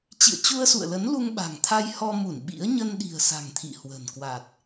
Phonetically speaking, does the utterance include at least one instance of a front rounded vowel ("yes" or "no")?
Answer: no